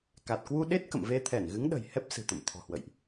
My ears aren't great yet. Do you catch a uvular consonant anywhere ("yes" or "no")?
no